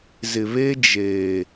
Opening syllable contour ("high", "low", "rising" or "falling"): low